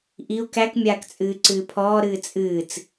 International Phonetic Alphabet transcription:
ʔ i u̯ k æ k mʲ aː k t͡sʼ ɨː ǀ ɨː pʰ ɔː ɾ ɨː t͡sʼ ɨː t͡s

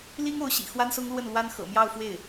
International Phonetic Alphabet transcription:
l i˥ ŋ o˧˥ ʊ̯ ɕ ḭ˨˩ x w a˥ n s ʊ˥ ŋ l w ə˥˩ n l w a˥ n x ɤ̰˨˩ m j ɑ˥˧ ʊ̯ f w e˥˩ ɪ̯

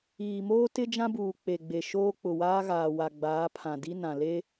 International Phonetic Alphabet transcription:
iː˨ m oː˦ t ɪ˦ d͡ʒ ã˦ b uː˨ k͡p e˨ ɡ͡b e˨ ʃ oː˦ k͡p ʊ˨ w aː˦ ɣ aː˨ w a˨ ɡ͡b aː˨˦ pʰ ã˨ d i˦ n ã˨ l e˦

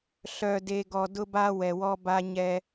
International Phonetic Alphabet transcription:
ɬ œ˨ d e˨ ɡ ɔ˨ d ʊ˦ b a˦ w ɛ˨ w ɔ˦ b a˦ ɲ ɛ˦

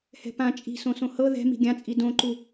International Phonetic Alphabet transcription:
h ɛ̤ p ã t͡ʃʼ i̤ s õ s õ h ɤ ð ɛ̤ m i̤ ɡʲ ã t͡sʼ i d õ ǃ u

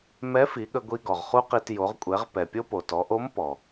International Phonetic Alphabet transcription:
m ɛ˧˥ f i˩˧ ɠ ə˧ ɡʷ i˧ ɡ ɔ˩ ʁ χ u˥ q i˧ t j o˩˧ ʁ kʷʼ ɛ˩˧ ʁ p ɛ˩ pʲ o˥ p o˩ t ɔ˩˧ ʔ o˧˥ m p ɔ˩

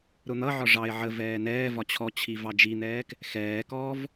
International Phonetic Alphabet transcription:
ɾ ʊ n̪ ʌ ʕ ɒ ʐ ɑ ɪ̯ ʕ ə v ɛː n ɛː v ɒ t͡ɕʰ ɔ t͡ɕʰ i v ɑ d͡ʒ i n̪ ɛː k | x ɛː k ɔː v

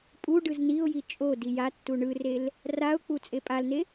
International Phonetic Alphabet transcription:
pʼ u ɖ ɯ z n i ʊ̯ j i t͡ʃʼ o d i j a tː u ɳ ɯ r e l | r a ʊ̯ k͡p u t͡sʼ e pʼ a l n e

